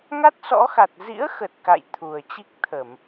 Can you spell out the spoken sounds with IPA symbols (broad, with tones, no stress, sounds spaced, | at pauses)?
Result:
ŋ a˦˥ t̚ s ɔ̰˧˥ x a˨˩ t̚ z ḭ˧˥ ə̯ x ə˨˩ t̚ k a̰˧˨ j t̪ʰ u˨˩ ə̯ t͡ɕ i˦˥ k̚ t̪ʰ ə˧˩˨ m